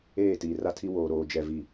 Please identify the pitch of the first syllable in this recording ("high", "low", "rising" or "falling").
falling